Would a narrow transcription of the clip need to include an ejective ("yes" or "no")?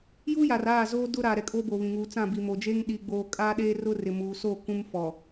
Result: yes